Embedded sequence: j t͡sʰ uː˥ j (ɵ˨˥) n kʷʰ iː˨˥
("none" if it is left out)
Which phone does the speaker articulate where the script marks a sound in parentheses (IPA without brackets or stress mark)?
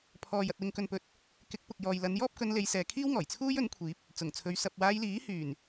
ɵ˨˥